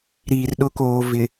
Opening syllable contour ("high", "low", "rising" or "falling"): low